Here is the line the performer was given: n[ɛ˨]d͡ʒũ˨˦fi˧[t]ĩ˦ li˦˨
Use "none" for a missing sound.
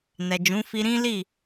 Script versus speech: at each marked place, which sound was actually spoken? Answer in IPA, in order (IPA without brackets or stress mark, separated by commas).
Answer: ɛ˨, ɾ